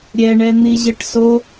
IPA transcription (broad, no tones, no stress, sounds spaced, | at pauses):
ɾʲ ɛ ɳ ɛ n̪ i ʑ ə ʈ s o